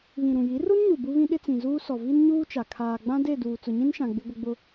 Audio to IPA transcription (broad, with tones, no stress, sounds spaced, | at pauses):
β ĩ˨ ɾ ũ˨ j i˨˦ r u˦ n ɲ u˨ b u˦ β ĩ˦ ɗ ɪ˦ t͡s ĩ˨ z uː˦ s ɔ˨ v i˦ n ɲ uː˦ t͡ʃ a˨ kʰ aː˨ ɡ͡b ã˦ d e˦˨ d uː˨ t͡s ʊ˨ ɲ ĩ˦ n ʃ ã˨ ɡ͡b ɪ˦ ɡʷ ɪ˦ ɡ͡b ʊ˦